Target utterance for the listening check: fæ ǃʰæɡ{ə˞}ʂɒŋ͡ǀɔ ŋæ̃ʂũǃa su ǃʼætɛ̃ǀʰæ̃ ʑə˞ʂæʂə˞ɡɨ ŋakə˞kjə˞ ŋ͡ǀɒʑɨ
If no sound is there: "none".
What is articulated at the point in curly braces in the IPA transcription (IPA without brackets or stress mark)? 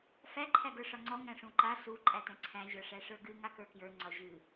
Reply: ə˞